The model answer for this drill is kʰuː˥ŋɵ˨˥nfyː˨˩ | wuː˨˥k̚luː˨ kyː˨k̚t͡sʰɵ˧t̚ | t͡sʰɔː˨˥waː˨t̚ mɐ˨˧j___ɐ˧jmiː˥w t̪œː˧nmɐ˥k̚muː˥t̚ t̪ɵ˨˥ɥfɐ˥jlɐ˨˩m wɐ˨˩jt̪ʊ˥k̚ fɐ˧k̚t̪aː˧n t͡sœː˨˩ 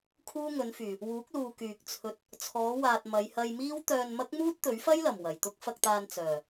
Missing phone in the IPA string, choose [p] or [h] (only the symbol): h